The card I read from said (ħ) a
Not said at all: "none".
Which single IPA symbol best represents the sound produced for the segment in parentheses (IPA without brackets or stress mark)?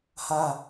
h